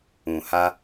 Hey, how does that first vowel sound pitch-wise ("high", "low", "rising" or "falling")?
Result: low